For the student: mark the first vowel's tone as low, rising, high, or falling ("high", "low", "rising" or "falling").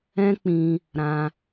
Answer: high